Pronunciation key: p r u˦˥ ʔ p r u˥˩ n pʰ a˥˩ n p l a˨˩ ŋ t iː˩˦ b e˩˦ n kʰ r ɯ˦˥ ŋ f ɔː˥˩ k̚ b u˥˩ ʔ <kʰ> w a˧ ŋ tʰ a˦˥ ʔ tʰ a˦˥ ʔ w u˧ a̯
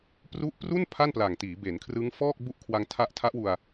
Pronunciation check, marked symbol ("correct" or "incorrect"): correct